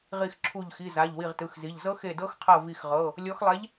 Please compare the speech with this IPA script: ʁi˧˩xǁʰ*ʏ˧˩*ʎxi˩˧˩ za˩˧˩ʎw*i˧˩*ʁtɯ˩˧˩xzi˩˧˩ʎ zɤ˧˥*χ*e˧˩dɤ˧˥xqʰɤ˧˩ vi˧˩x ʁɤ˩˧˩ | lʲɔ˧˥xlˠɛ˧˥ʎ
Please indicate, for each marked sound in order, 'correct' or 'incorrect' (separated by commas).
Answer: incorrect, correct, incorrect